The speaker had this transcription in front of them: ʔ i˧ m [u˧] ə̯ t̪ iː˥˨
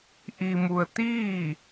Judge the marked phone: correct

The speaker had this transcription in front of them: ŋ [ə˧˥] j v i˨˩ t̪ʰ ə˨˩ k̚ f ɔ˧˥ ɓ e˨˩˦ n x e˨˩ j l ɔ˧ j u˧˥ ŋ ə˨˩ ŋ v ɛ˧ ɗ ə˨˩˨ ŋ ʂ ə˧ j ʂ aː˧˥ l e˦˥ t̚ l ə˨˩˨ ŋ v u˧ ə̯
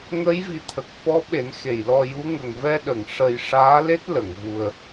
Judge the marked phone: correct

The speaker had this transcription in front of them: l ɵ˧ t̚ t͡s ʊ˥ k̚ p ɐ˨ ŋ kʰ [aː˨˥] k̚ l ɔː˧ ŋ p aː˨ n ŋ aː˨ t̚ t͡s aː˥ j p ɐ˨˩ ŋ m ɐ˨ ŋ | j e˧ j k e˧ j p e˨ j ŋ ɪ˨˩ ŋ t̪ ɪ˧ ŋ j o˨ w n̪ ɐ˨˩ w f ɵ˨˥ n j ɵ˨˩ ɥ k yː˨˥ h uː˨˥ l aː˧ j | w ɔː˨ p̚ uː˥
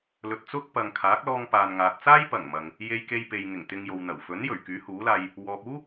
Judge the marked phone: correct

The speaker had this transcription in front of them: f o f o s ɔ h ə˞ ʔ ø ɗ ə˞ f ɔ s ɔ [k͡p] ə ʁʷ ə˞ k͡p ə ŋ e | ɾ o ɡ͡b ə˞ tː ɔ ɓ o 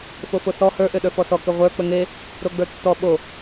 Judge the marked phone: incorrect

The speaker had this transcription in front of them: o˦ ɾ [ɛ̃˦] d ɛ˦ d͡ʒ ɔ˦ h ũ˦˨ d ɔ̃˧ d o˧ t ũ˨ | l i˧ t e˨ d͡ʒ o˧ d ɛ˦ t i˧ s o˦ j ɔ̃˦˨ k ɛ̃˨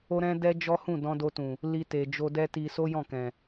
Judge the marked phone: correct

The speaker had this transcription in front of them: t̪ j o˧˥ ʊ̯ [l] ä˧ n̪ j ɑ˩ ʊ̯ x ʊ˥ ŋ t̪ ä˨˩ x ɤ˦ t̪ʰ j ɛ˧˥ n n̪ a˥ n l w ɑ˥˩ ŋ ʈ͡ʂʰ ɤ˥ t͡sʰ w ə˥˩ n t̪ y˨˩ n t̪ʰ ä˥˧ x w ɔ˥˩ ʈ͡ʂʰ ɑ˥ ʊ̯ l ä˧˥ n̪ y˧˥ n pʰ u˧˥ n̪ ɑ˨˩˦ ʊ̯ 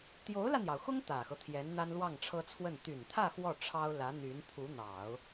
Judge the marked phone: correct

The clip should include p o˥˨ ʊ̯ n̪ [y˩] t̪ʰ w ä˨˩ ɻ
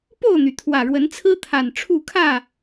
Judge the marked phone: correct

